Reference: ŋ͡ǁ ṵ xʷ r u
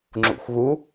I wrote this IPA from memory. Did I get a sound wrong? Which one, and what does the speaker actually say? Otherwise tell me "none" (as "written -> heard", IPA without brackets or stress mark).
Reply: r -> ɣ